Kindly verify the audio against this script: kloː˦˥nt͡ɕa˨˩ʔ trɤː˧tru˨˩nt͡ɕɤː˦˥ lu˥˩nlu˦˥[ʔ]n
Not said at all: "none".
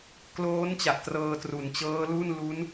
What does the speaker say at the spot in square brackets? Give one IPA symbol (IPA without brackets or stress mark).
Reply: none